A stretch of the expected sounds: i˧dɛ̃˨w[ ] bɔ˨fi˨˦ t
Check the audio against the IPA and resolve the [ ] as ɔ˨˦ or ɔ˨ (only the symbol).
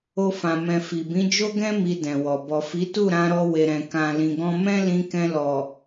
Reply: ɔ˨